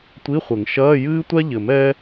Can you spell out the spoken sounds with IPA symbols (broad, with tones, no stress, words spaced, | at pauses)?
tʷi˧˥˧χʷɘ˨˩˦ŋ ʃɐː˧˥˧jɨː˥tʷa˥ʎɘ˨˩˦m ɛ˥